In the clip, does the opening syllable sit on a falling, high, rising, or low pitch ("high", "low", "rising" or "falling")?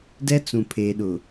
high